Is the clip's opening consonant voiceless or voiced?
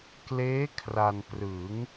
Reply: voiceless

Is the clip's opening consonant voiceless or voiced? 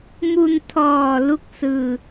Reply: voiced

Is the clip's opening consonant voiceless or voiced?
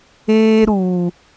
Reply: voiced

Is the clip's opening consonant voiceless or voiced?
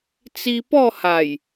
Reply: voiceless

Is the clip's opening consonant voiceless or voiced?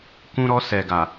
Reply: voiceless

